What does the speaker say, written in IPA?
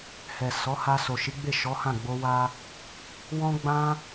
h ɛ˨ s ɔ˨˦ h a˧ s o˨ ʃ i˨˦ ɡ͡b e˦˨ ʃ ɔ˨˦ h ã˦˨ ɡ͡b o˧ w a˧ | w ɔ̃˦ ɡ͡b ã˦

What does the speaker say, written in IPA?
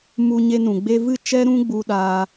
m u˧ ɲ e˧ n ũ˨ ɡ͡b e˧ v ɨ˦˨ t͡ʃ ɛ˦ ɾ ũ˦ ɡ͡b u˧ ɗ aː˧

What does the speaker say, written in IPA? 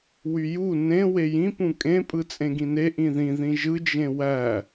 w y j u n ẽ w e j ĩ p ũ kʼ ẽ pʼ ɯ t͡sʼ ẽ ɡ ĩ n e ʔ ĩ ð ĩ ð ĩ ʒ ɯ d͡ʒ ẽ w æ

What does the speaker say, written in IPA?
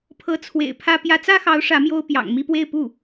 pʰ ɤ˧˥ t͡sʰ w ḛ˨˩ ɪ̯ pʰ ä˥ p j ä˧˥ t͡s ä˥ x ɑ˧˥ ʊ̯ ʂ ä˧˥ m j o˥ ʊ̯ p j ɑ̰˨˩ ŋ m i˥˧ p w e˥˧ ɪ̯ p u˥˩

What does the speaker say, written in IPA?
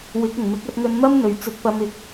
w ɪ˨˥ k̚ ʊ˨˩ ŋ m ɪ˨˥ k̚ ɐ˧ t̚ ŋ ɵ˧ n m ɐ˥ m n̪ ɵ˨˩ ɥ t͡s ɵ˧ t̚ p ɐ˧ m ɪ˨˥ k̚

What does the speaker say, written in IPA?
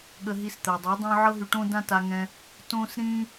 ɠ ə˧ ɦ i˧ s t̪ ɜ˨ dˤ y˨˦ dˤ õ˦ ʕ ɤ˦ ɦ y˧ ʈ õ˦ d ã˦ t a˧ ŋ ɛ̃˧ | t õ˦ s ɾ ĩ˦

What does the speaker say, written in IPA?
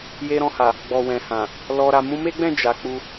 j e˧ ɾ ɔ̃˧ h a˨ | ɡ͡b ɔ˨ w ɛ̃˨ h ã˨ | l ɔ˧ ɾ a˧ m ũ˧ m e˦ ɡ͡b ɛ̃˦˨ d͡ʒ a˨˦ k͡p u˧

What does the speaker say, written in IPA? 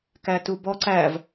k æ t u b ɔ ǀ æ v

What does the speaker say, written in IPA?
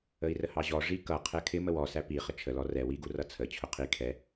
ə i̯ r ə h ɑ ʑ ɔ ʐ i k ʌ qʰ ɛ kʰ ɪ m ə w ɔ s æ p i χ ə t͡ʃʰ ə l ɔ r ɛ w i ɡ u r ʌ t͡sʰ ə t͡ɕʰ ʊ qʰ i kʰ ɛ

